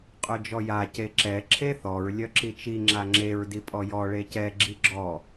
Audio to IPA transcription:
qʼ œ d͡ʒ ɔ j a c e ǁ ɛ ǁʰ e θ ɔ ɹ lʲ œ ǁ i t͡ʃ i ŋ͡ǁ a ŋ͡ǁ e ɹ d i pʼ ɔ j ɔ ɭ e c ɛ ɡ͡ǁ i ɡ͡ǁ ɔ

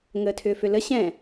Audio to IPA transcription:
ŋ əː tʰ ʏː f ʏ l ə ɕ ɛ̃

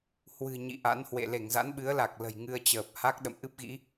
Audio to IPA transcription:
h w ɨ̤˨˩ ɲ ḭ˧˨ ʔ a̰˧˥ n h w ḛ˧˨ l e˧˩ ŋ z a̰˧˥ n ɓ ɨ˨˦ ə̯ l a˨˩ k̚ l ə̤˨˩ j ŋ ɨ˧ ə̯ t͡ɕ əː˨˩ p̚ h a˦˥ k̚ ɗ ə̰˧˨ m ʔ ɨ˦˥ p̚ ɣ ḭ˧˥

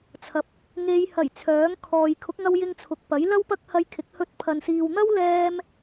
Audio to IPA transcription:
t͡sʰ ɐ˨˥ p̚ | ŋ e˨˧ j h ɐ˨˩ j t͡sʰ œː˨˥ ŋ kʰ ɔː˨ j kʰ ʊ˨˥ k̚ ŋ ɐ˧ w j ɪ˧ ŋ t͡sʰ ʊ˨ k̚ p ɐ˨˥ j l ɐ˥ w p ɐ˥ k̚ h ɐ˧ j kʰ ɪ˨˥ k̚ h ɵ˧ t̚ pʰ ɐ˨ n s iː˨ w n̪ ɐ˥ w l ɛː˥ m

